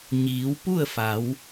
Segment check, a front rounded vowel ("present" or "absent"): absent